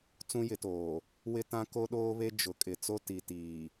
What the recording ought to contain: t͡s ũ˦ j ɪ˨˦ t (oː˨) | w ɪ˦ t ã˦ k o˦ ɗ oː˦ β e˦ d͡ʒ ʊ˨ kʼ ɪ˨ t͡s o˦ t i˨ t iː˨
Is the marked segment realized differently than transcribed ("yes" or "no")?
no